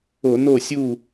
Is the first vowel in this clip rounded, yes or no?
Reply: yes